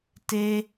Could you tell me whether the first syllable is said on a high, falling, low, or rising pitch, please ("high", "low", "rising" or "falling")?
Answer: high